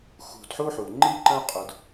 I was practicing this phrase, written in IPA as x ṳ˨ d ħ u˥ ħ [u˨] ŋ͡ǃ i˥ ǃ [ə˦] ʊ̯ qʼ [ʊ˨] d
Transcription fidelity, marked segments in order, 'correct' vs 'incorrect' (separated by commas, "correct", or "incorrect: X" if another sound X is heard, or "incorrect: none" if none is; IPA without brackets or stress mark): incorrect: u˩, incorrect: ə̃˦, correct